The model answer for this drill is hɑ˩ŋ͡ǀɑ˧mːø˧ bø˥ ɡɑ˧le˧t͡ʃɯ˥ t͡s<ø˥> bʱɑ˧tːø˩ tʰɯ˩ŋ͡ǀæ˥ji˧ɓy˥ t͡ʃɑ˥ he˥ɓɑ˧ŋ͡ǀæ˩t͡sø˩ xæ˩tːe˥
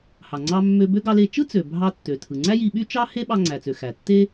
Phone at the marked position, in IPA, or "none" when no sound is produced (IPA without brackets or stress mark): ø˩